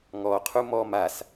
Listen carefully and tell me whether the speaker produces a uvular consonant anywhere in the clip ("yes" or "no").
yes